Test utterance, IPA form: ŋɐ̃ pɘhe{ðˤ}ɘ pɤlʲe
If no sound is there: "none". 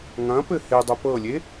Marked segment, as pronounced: dˤ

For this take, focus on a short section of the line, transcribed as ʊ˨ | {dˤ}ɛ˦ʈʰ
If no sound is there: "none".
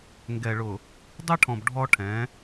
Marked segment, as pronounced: dˤ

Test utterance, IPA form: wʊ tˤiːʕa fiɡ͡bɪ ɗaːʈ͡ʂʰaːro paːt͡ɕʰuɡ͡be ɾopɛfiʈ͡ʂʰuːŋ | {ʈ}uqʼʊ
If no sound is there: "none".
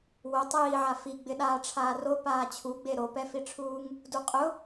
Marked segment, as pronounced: d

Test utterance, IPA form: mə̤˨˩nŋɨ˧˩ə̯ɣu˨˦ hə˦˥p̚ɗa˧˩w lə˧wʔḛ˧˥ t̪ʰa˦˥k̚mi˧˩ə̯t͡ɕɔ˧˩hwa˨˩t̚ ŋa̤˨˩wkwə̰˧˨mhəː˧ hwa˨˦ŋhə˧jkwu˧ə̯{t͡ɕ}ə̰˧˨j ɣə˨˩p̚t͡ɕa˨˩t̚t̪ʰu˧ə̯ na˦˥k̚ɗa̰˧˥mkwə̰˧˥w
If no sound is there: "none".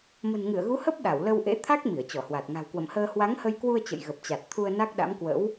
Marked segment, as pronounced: t͡ɕ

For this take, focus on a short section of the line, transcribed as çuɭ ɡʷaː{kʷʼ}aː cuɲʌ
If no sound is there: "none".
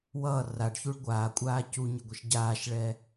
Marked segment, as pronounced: kʷʼ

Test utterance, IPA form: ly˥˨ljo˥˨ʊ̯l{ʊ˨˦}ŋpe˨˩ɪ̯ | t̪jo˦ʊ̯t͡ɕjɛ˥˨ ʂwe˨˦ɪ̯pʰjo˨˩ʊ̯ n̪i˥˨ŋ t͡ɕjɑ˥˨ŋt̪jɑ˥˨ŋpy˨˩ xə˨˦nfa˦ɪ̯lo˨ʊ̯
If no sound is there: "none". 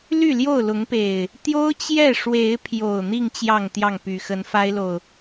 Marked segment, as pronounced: ʊ˨˦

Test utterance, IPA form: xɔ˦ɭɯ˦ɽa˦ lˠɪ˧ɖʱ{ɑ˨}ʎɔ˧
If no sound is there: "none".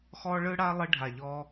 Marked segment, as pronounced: a˨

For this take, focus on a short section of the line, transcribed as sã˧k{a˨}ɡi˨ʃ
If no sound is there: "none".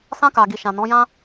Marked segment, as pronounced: a˨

